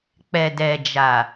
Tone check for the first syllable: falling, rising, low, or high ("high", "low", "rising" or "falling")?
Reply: low